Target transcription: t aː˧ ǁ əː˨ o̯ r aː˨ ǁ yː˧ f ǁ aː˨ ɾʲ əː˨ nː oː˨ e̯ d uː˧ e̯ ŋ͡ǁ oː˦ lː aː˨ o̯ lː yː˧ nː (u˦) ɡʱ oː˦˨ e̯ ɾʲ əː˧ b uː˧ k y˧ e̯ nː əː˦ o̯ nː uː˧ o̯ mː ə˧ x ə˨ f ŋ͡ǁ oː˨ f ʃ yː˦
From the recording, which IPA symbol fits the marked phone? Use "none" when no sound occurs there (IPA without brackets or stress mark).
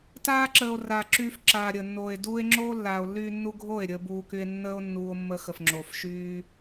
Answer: u˧